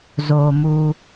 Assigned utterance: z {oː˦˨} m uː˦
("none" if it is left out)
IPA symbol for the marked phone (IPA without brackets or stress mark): oː˨